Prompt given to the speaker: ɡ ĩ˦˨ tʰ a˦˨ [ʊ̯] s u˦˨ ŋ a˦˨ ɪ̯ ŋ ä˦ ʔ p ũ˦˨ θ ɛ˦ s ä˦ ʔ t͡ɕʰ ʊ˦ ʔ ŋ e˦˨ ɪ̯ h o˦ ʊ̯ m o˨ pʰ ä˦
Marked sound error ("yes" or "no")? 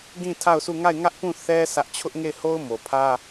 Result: no